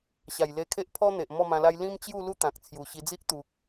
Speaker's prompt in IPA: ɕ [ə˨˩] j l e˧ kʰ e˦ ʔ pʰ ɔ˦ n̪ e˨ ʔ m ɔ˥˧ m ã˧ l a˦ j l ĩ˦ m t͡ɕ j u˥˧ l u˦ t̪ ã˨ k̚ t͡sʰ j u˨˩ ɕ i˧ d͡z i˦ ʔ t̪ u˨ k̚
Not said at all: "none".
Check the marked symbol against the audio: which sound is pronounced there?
a˨˩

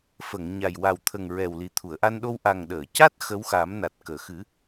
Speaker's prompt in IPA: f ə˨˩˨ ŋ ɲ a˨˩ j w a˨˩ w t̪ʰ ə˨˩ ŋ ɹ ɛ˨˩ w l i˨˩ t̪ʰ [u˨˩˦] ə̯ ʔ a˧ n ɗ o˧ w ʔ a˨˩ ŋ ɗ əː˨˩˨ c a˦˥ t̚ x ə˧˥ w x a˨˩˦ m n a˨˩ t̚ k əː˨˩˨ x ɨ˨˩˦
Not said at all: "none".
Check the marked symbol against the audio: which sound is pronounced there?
u˨˩˨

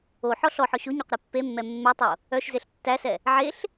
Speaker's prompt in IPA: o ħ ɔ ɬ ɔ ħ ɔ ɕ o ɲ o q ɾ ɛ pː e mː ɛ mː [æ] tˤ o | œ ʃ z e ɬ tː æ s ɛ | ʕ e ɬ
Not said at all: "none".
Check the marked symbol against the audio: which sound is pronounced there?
ɛ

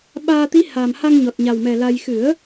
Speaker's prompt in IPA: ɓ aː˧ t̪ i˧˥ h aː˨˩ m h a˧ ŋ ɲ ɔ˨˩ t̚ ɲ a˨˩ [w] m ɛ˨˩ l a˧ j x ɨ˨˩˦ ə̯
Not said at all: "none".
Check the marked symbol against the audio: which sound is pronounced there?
w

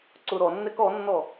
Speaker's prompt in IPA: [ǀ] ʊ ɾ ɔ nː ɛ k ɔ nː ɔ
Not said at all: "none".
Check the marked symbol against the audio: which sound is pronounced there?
ǀ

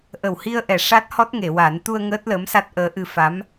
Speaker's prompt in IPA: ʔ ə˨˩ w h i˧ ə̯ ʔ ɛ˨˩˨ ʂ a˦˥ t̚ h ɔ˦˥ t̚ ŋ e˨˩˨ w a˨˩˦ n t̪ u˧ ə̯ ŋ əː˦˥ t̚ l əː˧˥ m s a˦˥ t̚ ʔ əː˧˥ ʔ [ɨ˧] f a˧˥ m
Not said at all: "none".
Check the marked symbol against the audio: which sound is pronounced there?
ɨ˧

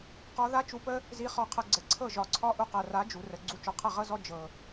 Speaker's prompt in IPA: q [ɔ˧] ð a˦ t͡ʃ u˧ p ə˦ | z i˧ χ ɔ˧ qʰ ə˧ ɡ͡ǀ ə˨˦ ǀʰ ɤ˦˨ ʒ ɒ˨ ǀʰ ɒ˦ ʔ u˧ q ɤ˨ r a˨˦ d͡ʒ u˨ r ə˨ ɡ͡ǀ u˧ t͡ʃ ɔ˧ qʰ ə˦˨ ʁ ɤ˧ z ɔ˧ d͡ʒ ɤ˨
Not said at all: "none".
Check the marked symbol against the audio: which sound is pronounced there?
ɔ˧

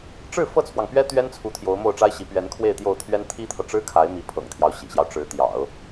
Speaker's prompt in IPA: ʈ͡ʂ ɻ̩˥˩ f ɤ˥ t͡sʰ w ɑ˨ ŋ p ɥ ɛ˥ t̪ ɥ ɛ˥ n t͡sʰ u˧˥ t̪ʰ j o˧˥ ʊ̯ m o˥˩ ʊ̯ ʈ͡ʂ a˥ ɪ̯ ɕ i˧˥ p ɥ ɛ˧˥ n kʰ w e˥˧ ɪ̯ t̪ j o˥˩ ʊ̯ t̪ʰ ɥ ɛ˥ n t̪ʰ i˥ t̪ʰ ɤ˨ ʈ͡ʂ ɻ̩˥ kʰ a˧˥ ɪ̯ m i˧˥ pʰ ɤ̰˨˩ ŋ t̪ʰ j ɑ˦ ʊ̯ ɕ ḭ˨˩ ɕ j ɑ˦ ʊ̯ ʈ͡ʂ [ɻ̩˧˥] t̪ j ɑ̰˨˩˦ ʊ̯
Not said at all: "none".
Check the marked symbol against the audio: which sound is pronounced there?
ɻ̩˧˥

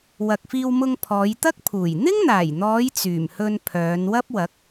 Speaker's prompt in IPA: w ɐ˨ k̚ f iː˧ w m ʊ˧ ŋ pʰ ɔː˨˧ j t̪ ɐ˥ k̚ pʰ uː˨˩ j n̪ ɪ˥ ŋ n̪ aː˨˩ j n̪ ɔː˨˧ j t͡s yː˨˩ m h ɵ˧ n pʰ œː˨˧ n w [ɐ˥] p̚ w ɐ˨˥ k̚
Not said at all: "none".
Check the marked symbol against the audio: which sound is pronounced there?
ɐ˥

